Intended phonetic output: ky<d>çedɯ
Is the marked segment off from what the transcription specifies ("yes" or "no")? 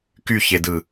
yes